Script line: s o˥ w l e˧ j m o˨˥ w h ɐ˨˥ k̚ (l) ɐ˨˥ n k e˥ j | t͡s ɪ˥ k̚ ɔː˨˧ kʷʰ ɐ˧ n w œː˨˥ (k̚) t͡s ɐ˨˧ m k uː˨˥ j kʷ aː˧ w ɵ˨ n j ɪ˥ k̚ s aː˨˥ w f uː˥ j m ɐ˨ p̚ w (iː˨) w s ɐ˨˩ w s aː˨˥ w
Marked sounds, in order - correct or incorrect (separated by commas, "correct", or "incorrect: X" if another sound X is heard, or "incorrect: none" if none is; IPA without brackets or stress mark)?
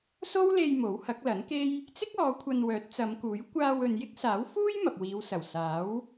correct, incorrect: t̚, incorrect: iː˨˧